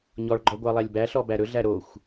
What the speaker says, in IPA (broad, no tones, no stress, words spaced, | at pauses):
ɲɔɭɡ͡ǃɔ ɡʷɑlˠælʲbæɬɔ bæɾɵɮæ ɾoxʷ